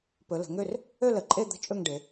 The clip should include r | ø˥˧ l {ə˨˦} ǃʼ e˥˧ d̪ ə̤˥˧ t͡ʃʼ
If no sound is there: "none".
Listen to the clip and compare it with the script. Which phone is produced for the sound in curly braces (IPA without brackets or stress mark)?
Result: ə˨˦